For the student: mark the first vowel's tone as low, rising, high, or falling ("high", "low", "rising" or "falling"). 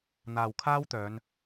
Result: low